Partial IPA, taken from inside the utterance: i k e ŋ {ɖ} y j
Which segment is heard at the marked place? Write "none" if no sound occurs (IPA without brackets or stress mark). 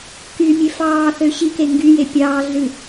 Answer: ɡ